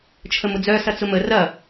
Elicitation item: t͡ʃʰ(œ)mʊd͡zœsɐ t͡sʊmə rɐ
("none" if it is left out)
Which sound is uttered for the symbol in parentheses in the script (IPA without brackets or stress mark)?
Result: ə